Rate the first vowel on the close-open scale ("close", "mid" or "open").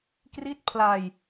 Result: close